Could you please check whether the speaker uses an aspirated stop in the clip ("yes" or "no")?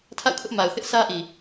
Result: yes